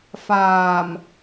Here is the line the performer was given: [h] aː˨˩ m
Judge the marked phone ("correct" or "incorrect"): incorrect